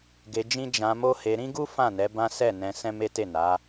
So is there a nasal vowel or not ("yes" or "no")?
yes